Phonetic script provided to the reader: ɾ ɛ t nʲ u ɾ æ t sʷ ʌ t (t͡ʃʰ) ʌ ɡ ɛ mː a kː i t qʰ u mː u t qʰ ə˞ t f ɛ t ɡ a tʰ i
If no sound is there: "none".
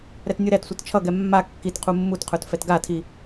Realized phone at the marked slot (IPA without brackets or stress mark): t͡ʃʰ